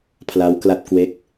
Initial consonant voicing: voiceless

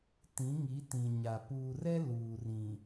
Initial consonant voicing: voiceless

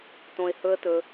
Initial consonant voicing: voiceless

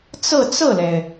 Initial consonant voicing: voiceless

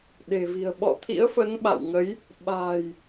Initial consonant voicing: voiced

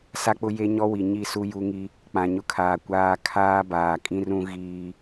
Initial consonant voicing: voiceless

